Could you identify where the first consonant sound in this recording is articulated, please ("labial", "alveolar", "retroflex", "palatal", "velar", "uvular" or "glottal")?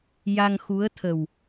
palatal